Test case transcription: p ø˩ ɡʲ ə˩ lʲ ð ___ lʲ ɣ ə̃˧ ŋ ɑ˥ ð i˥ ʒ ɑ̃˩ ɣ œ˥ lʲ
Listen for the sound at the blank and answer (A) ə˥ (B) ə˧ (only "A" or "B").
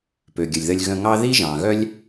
B